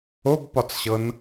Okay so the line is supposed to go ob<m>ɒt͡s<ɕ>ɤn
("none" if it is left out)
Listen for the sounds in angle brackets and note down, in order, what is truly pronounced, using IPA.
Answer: p, ɕ

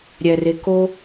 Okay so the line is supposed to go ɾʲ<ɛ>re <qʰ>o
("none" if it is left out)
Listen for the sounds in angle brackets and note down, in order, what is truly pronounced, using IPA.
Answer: ɛ, k

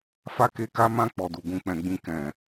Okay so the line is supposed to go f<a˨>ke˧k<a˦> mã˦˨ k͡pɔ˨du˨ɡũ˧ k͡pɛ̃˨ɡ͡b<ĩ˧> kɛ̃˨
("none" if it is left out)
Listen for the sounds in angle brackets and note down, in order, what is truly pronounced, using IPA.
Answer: a˦, a˦, ĩ˧

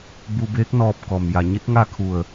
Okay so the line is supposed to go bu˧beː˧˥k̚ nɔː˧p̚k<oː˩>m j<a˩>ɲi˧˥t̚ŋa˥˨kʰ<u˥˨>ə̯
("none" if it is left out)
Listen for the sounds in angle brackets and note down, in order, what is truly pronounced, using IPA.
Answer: ɔː˩, a˩, u˧˩

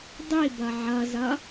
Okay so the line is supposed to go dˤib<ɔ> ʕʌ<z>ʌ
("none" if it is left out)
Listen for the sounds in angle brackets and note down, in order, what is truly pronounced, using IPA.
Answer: ʌ, z

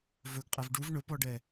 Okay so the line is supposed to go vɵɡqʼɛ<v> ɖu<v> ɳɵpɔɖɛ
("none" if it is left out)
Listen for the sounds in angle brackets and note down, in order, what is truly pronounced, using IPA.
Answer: v, v

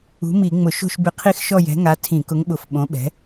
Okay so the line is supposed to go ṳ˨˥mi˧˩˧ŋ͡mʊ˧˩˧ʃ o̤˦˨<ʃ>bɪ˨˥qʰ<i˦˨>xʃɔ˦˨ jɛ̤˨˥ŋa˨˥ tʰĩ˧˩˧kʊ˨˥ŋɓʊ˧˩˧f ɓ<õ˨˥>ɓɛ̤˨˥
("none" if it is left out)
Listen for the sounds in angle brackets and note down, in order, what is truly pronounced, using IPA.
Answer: ʃ, i˦˨, õ˨˥

